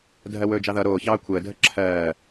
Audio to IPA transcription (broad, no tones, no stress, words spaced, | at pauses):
dʱɜwɵːd͡ʒɑðʌ ɾoːçɑː kʷʰəːdʱə ǁʰɜː